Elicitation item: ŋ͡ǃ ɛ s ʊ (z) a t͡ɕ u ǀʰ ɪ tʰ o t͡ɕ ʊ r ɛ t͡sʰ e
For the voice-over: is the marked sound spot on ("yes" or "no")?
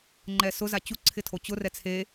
yes